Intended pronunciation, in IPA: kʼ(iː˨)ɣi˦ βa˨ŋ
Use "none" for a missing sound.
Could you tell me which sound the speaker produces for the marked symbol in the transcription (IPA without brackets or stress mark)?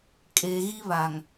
eː˨